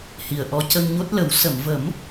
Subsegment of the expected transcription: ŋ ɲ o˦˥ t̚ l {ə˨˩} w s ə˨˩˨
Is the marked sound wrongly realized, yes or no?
yes